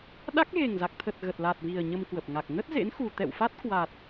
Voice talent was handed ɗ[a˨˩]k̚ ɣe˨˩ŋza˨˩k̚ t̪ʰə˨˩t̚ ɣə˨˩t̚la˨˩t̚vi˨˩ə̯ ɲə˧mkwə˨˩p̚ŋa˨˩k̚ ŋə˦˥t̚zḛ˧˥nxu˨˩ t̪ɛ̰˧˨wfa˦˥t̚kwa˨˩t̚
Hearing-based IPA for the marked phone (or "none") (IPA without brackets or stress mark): a˦˥